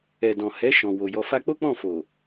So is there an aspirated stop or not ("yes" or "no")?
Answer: no